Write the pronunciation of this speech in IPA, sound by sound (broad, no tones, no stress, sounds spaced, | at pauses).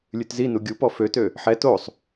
lʲ ʉ t z i n u ɡʲ u p ɔ f ø t ø | ħ ɛ t o sˤ